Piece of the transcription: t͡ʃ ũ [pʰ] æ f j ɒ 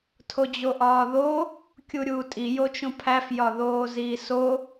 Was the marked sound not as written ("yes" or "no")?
no